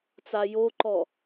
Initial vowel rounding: unrounded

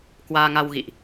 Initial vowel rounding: unrounded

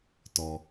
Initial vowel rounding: rounded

